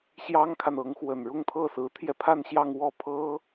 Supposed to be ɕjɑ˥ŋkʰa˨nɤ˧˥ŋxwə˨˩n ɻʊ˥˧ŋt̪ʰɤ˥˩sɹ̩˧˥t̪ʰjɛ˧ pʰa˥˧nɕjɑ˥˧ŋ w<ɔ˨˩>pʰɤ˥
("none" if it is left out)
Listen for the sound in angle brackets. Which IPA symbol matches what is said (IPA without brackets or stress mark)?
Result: ɔ˥˩